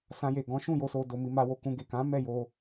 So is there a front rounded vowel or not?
no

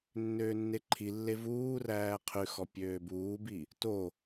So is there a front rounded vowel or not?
yes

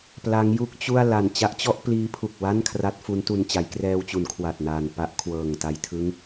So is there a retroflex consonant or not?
no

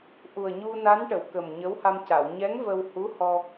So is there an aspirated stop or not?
no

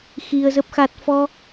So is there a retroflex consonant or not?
no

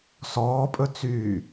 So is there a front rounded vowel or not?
yes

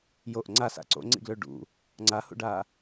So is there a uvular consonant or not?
no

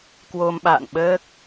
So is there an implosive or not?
yes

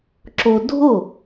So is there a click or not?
yes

